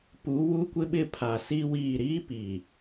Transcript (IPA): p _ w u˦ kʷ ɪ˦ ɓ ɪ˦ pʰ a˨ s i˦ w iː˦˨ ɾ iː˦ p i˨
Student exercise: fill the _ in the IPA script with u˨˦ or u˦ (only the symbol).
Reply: u˨˦